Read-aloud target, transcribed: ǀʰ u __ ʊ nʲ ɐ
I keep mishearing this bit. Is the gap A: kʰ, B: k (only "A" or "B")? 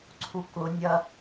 B